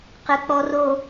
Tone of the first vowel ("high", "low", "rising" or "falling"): low